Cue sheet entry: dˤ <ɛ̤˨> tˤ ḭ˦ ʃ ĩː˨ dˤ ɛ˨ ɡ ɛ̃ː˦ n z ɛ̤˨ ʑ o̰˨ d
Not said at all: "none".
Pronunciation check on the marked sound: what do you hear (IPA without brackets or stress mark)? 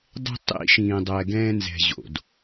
ɛ̤˦